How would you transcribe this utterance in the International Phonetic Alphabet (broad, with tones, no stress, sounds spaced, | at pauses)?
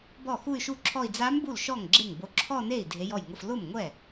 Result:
b ɔ˥˩ x u˥˧ y̯ ʃ u˥˧ ǁʰ ɔ˥˧ i̯ d͡z a˧˥ m b u˥˩ l ʃ ɔ˥˩ ŋ ɡ͡ǁ e˥˩ ŋ b o˧˥ ǁʰ ɔ˥˧ n e˥˩ i̯ dʱ e˧˥ j ɔ˥˩ j ŋ ʊ˥˧ f l ʊ˥˩ m ŋʷ ɛ˥˩